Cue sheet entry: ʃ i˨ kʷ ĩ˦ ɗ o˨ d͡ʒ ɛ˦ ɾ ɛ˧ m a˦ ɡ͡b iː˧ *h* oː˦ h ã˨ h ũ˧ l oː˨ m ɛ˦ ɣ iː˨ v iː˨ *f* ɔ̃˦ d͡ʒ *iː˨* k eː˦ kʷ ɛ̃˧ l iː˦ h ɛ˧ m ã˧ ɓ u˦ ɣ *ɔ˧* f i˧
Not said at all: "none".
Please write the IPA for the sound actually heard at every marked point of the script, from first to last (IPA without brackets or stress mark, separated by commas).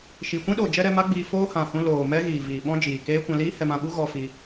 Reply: f, ɓ, iː˨, ɔ˧